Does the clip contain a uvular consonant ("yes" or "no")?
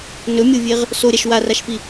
yes